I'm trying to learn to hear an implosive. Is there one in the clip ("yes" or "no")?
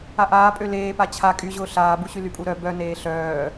no